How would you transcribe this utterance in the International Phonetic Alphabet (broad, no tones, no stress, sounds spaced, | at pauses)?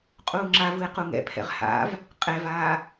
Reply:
qʼ uː ŋ͡ǁ a v ɯ e̯ q u ŋ ɛ̰ pʰ ɛ̰ ʁ h a̰ v | qʼ ɛ v aː